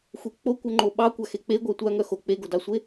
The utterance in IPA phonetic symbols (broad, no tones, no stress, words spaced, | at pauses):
xʷek͡po kʷœŋ͡ǃoɓɑ kʷaxek͡pe ɡʷœtʷa ŋœxo k͡peɡodɑsʷe